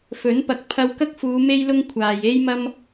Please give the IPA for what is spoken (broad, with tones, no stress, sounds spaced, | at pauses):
f ɵ˨˥ n p ɐ˨˥ k̚ pʰ ɐ˧ w k ɐ˥ k̚ f uː˨˧ m e˥ j l ʊ˥ ŋ kʷʰ aː˨ j e˥ j m ɐ˥ m